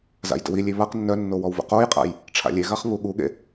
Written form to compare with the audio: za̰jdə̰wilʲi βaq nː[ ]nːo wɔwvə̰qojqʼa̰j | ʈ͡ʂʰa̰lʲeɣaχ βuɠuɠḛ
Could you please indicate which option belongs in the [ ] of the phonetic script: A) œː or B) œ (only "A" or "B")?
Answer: B